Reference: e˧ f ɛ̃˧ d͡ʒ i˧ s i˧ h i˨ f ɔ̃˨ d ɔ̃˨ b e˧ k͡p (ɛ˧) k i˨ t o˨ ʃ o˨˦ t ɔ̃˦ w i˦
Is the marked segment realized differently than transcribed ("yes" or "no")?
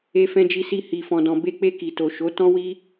yes